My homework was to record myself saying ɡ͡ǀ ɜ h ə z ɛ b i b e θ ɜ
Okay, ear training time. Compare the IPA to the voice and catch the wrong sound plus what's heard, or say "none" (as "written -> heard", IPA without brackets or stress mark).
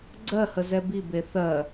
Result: none